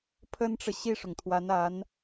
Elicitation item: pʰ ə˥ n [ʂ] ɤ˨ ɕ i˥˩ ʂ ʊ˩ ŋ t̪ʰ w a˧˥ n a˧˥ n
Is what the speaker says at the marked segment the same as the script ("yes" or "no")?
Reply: no